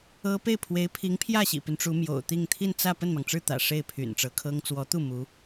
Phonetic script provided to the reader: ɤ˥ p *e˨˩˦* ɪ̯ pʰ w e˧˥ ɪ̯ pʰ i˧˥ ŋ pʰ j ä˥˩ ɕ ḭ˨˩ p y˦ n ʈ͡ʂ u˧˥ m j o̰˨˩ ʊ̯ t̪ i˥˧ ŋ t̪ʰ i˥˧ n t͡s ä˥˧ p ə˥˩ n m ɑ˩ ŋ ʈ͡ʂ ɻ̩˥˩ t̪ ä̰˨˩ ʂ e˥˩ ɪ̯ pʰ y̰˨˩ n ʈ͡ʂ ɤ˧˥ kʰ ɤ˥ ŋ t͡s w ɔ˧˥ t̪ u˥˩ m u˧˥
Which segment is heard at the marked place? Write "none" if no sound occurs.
e˥˩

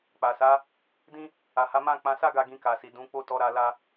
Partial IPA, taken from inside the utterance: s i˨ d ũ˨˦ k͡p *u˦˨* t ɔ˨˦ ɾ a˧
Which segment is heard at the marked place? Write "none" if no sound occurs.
o˦˨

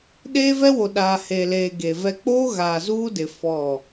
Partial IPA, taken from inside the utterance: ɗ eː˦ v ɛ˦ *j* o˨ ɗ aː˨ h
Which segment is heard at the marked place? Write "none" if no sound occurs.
w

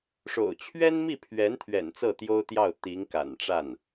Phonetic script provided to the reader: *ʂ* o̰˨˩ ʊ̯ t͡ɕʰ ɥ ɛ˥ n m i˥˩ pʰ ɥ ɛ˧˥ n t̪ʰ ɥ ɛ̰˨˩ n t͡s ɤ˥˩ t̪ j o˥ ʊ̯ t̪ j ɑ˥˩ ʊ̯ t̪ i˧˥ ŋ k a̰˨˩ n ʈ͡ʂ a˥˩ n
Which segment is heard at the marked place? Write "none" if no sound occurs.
ʂ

